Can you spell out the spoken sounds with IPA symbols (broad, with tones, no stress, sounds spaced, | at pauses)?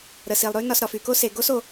ɾ ə˩ s i˩ lˠ ɾ ʉ˥ n ɒ˨ s ɾ ɒ˩ f y˩ k o˦ s e˩ ɡ o˥ s o˩